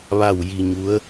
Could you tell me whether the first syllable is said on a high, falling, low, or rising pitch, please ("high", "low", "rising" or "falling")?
falling